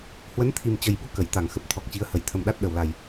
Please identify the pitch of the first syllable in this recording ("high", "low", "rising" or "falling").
rising